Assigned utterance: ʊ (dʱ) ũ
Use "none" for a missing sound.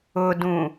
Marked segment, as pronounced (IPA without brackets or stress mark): d